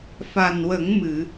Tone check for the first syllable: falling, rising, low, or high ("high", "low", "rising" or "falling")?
low